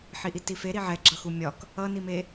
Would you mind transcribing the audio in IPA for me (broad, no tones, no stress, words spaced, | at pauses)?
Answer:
ħiʔitife ɾiʕɛ ɡ͡ǁʌxumʲɒk | ʌnime